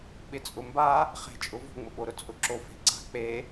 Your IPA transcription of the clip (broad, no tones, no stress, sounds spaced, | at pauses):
ɓ ɪ t͡sʼ ʊ m b a | χ e̤ t͡ʃʼ ʊ v o̤ ŋ͡m ʊ ɓ o ɾ ʊ t͡sʼ ʊ ǁ o f e̤ ǀ a̤ k͡p e